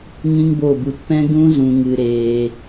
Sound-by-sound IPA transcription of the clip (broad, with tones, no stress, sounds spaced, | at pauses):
ŋ ĩ˦ ŋ b o˦˨ b u˧ t p ɛ̃˦ ɡ ũ˦ z ũ˧ ŋ ɨ˧ ɾ eː˧